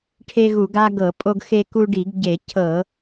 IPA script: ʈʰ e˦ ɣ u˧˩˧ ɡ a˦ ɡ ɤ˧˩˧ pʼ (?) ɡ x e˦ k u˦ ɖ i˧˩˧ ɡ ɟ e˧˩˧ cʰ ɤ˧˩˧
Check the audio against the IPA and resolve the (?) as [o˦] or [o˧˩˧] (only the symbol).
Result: o˦